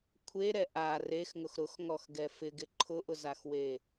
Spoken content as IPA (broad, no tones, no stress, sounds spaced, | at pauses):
kʷʰ e ɾ ɛ ʔ a r e x ŋ ʊ x ɾ ʊ x ŋ ɔ x ɡ ɛ f ɪ ɡ ɪ ǃʰ ʊ ʔ ʊ z a x w e